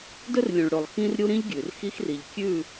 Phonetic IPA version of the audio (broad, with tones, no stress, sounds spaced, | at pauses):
d ɵ˦ r lʲ ũ˨ ɭ ɽ o˨ lˠ x ĩ˦ r ɾʲ u˦ ɾ ĩ˦ ʎ ɡʲ ʉ˨ r x i˦ x r i˨ ʎ kʲ ʉ˦˨